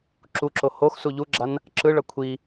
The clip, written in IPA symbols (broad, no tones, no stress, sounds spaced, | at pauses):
ǁ u ǁ o h o x s u ʎ u ɡ͡ǁ a n | ǁ ɯ ɭ ʌ kʷʰ i